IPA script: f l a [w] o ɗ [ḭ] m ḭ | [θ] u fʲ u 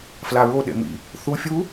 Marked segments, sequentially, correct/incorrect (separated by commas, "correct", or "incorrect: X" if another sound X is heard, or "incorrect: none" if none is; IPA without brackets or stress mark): incorrect: ɹ, incorrect: ḛ, correct